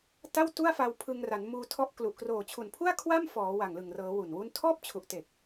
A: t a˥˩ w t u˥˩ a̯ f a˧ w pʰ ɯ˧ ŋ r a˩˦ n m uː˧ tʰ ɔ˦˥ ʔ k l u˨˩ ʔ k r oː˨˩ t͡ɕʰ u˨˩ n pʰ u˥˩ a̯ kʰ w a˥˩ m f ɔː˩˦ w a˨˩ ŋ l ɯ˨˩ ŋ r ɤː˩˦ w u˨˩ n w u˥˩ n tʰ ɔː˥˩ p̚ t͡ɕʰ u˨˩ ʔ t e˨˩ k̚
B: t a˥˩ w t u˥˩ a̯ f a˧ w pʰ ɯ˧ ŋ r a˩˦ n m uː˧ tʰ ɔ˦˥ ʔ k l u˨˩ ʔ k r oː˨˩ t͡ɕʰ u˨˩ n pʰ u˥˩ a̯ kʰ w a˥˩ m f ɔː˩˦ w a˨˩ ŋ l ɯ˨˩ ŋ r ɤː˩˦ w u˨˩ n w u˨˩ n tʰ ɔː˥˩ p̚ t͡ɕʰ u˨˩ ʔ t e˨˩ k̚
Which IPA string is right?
A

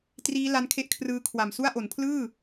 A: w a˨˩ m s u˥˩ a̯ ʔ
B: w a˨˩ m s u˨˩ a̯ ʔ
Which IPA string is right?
A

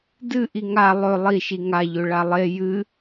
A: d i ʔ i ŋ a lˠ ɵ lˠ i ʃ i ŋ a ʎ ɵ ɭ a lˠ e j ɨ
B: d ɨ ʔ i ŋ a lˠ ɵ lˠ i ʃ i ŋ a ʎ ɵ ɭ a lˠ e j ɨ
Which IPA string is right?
B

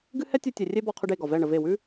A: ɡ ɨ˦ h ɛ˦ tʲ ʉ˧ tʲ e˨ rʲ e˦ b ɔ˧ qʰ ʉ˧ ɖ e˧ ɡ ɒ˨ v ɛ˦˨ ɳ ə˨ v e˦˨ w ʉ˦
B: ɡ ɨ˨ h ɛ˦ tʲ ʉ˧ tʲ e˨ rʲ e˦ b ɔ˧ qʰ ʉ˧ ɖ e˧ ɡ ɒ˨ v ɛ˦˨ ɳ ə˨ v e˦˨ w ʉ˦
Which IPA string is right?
A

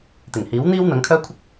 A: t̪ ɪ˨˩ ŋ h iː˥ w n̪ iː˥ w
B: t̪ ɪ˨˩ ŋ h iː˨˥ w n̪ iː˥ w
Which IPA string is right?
B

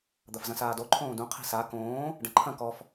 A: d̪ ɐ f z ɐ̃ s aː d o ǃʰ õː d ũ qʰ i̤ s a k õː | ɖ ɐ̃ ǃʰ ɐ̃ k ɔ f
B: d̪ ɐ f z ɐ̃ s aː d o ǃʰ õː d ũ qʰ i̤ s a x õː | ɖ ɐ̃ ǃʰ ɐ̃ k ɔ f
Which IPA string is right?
A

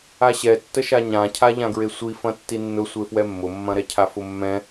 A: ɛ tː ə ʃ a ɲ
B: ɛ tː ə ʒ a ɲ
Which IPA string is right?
A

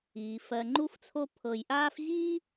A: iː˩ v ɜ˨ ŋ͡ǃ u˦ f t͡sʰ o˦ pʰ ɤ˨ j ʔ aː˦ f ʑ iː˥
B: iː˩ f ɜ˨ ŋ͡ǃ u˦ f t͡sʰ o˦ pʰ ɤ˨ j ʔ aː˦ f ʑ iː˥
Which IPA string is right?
B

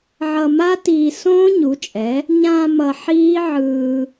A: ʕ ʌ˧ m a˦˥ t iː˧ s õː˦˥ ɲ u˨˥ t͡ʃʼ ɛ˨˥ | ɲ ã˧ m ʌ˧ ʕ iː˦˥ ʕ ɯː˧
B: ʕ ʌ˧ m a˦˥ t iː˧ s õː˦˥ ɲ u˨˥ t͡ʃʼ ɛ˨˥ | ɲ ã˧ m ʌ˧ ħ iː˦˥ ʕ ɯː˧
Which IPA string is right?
B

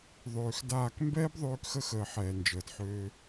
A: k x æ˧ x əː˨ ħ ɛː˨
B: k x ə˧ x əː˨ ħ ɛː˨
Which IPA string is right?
B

